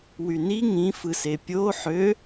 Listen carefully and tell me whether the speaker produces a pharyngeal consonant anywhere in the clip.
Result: yes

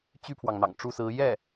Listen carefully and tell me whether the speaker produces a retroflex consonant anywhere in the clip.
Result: yes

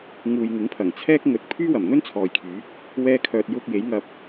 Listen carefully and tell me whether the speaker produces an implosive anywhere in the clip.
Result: no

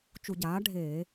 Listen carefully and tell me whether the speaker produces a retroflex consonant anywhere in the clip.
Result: yes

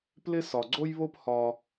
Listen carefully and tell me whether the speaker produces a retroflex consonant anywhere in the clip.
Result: no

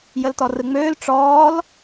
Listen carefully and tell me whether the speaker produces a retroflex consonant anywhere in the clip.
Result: yes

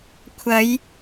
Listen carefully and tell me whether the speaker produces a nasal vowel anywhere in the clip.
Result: no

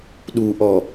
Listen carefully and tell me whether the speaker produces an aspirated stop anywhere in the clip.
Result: no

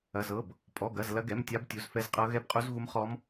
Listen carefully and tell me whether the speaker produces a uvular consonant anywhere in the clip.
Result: yes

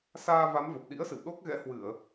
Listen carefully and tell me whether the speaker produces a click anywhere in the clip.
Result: no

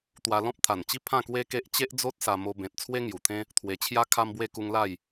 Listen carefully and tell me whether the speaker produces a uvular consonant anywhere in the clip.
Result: no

